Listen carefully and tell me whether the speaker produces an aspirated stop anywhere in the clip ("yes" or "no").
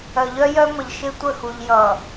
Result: no